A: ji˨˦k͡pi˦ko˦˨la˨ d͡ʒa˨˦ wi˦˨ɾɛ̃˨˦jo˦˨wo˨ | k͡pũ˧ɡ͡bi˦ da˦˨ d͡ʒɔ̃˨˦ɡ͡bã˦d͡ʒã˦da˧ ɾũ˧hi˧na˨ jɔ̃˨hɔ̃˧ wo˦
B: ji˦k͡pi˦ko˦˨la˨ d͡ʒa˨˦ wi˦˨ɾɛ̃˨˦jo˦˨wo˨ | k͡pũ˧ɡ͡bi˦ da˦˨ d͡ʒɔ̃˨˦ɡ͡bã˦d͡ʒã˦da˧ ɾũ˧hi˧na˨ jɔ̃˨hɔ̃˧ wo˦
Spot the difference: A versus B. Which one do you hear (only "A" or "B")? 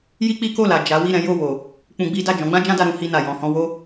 B